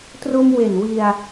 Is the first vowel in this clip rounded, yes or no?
yes